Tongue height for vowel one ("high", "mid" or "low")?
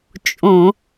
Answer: mid